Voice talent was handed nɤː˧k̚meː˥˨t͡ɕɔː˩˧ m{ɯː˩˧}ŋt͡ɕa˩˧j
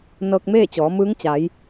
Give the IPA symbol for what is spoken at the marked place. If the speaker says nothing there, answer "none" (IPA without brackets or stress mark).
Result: ɯː˧˥